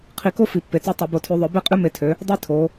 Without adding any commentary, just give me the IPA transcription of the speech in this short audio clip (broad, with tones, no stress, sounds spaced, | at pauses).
qʰ i˧˩˧ k o˦˥ f i˩˧ pː e˩˧ t͡s ø˦˥ tˤ œ˧˩˧ b o˧˩˧ tʰ ʉ˧˩˧ ðˤ œ˧˩˧ b e˦˥ qʼ ʉ˦˥ m e˧˩˧ tʰ ø˩˧ | dˤ i˦˥ tʰ o˩˧